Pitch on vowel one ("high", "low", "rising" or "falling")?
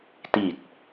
low